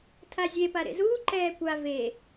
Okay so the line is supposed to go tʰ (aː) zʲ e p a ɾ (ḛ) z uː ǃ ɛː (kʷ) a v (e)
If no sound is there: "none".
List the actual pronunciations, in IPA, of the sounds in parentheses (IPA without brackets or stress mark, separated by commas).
a, ḛ, kʷ, e